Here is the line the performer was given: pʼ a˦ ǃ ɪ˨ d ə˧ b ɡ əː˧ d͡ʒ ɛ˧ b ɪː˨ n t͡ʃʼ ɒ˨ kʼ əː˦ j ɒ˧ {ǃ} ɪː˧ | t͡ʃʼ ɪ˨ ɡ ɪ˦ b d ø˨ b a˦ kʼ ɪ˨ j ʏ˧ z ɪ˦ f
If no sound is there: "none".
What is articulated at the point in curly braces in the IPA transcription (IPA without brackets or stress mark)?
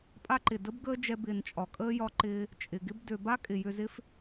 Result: ǃ